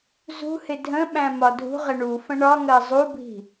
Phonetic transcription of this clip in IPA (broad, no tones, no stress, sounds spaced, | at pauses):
z ṳ h ɪ dʱ ə̃ ɓ æ̃ m ɒ dʱ ṳ ʁ ɪ ɳ u f ə̃ ɳ ɒ ŋ ɜ zˤ u bʱ i̤